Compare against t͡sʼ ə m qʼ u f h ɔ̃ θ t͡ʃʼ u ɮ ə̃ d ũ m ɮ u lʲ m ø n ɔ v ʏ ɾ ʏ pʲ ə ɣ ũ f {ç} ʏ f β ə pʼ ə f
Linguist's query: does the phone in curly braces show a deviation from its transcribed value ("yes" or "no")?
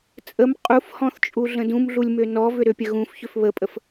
no